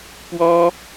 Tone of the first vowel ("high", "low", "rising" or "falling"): high